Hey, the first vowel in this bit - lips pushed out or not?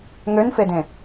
yes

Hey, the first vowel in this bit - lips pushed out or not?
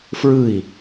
no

